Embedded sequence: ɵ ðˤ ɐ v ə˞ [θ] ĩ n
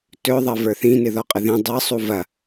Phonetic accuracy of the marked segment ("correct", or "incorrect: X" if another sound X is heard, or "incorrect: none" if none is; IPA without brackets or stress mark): correct